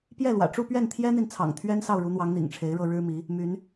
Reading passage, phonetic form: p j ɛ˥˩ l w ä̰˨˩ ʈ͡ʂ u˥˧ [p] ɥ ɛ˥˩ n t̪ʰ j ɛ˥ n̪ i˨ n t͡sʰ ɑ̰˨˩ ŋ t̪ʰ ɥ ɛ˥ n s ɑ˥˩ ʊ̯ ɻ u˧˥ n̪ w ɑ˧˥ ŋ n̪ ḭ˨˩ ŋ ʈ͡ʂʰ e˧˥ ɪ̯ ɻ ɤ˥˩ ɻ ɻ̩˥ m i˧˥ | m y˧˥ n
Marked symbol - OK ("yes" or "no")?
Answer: yes